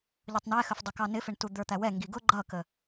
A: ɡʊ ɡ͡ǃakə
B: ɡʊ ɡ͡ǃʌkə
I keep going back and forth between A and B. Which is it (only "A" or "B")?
B